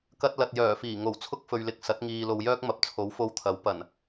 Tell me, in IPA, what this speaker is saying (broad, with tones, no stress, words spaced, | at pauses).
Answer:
kɐ˧t̚lɐ˨t̚jœː˨˩fiː˨˩ ŋo˨˩w t͡sʰʊ˥k̚fɵ˨ɥlɪ˨k̚ sɐ˨˥t̚ŋiː˨ lo˨wjœː˥k̚ mɐ˨p̚t͡sʰo˨˥wfo˧wt̪ʰɐ˨˥w pɐ˨˩n